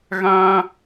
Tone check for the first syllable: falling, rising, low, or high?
high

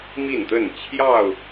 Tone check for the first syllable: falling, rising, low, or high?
falling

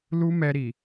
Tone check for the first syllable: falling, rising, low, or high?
high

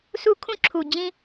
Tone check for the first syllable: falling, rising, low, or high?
high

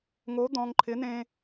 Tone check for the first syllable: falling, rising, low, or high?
rising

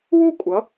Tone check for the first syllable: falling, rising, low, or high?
falling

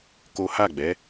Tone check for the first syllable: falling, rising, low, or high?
high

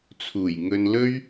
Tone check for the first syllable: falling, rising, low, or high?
low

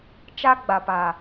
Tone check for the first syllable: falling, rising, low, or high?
high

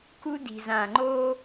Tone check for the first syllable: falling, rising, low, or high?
high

